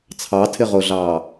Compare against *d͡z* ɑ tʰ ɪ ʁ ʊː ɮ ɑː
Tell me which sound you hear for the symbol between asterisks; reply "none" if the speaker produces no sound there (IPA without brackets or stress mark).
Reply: t͡sʰ